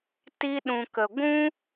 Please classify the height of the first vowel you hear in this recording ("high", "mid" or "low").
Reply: high